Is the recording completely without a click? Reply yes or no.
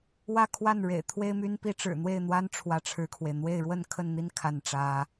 yes